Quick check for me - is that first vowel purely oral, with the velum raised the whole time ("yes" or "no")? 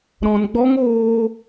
no